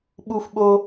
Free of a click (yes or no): yes